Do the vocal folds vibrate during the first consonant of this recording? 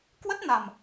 no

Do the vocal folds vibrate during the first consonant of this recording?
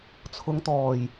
no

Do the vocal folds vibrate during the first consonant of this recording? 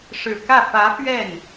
no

